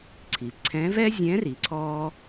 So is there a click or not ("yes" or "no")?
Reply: yes